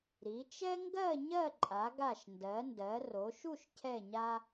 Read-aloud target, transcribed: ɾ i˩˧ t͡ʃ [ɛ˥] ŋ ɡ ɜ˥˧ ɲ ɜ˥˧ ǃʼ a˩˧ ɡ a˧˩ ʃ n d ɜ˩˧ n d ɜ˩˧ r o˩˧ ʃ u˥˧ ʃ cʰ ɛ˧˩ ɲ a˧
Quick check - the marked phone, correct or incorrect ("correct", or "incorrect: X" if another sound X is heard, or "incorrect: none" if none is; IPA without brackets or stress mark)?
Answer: correct